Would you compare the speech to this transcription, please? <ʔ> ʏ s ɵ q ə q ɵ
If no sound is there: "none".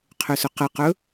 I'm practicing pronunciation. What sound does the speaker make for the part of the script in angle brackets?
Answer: qʰ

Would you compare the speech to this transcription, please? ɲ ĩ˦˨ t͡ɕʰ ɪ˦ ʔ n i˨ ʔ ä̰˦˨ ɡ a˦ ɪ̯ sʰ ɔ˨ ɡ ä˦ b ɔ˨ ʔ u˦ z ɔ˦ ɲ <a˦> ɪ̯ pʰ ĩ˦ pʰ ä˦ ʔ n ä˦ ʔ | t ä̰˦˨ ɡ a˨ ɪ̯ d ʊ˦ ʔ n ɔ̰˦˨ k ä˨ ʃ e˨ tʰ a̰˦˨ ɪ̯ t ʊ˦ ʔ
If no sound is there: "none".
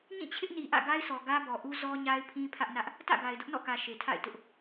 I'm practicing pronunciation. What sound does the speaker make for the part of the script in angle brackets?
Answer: a˦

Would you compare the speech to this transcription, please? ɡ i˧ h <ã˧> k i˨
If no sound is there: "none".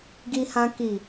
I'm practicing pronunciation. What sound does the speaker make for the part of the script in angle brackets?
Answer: ã˧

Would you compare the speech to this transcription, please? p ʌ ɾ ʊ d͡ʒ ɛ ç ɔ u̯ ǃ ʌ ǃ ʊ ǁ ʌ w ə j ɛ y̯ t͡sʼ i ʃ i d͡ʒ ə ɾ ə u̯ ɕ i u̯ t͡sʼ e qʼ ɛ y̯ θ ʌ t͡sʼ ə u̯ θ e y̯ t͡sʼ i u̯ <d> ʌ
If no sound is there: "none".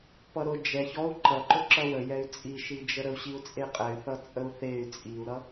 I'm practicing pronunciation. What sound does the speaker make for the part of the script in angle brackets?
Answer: ɾ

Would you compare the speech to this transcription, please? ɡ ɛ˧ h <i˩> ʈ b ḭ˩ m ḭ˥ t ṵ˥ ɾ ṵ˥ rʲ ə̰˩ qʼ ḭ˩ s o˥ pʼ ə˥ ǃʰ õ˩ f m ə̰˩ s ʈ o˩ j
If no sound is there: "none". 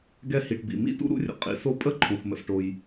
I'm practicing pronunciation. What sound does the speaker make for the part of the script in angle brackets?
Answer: i˩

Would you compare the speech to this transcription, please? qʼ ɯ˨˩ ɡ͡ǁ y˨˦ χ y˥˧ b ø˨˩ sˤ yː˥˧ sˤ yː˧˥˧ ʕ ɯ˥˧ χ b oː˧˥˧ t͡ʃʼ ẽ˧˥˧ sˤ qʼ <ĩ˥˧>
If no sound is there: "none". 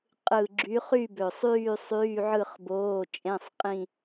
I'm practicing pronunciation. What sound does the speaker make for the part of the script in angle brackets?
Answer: ĩ˥˧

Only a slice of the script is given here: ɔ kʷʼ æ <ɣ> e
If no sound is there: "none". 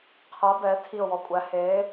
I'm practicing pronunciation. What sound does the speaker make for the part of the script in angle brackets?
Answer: h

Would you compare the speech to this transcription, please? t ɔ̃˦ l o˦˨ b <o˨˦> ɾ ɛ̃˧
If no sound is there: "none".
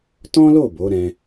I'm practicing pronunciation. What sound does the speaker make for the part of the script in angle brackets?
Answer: o˨˦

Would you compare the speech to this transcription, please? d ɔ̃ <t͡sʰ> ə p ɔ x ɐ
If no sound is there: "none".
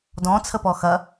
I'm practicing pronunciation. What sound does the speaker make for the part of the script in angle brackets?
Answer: t͡sʰ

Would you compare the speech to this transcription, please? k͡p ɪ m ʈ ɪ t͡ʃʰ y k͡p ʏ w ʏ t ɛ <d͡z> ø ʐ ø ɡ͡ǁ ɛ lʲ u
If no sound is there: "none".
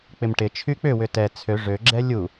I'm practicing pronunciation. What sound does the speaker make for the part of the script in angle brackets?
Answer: t͡sʰ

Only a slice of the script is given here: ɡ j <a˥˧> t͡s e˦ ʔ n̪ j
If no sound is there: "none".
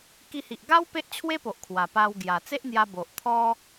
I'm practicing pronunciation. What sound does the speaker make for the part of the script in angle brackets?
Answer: a˨˩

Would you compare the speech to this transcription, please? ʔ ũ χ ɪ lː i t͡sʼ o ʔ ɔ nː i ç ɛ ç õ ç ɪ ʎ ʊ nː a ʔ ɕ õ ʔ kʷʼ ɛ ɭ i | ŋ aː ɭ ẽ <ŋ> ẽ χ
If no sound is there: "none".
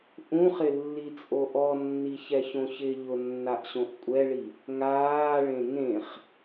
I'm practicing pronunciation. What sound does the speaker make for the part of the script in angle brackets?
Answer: ŋ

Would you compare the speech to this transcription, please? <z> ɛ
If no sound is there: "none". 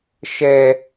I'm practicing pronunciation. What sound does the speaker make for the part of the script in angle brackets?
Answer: ʃ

